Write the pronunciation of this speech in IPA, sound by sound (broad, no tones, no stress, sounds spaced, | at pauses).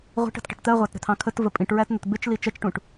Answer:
ʁʷ i̤ ʈ ə̤ t ʈ ə̤ ʈ t̪ ɜ ʁʷ æ t ɾ ə̤ t̪ʰ ɑ̃ kʰ ə t v ə pʼ ĩ ʈ ɹ æ t n̪ ʊ t b ɪ t͡ʃ l i t͡ʃ ɜ t͡ʃ ʈ ũ ʈ